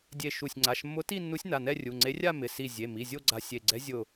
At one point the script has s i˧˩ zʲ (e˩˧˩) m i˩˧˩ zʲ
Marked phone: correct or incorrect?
correct